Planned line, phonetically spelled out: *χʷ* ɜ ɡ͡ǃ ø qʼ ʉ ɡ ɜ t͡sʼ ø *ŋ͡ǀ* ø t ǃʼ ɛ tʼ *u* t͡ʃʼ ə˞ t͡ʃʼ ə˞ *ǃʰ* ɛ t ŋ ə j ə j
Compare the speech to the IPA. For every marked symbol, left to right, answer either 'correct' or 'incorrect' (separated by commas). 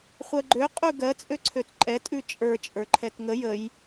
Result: correct, incorrect, incorrect, correct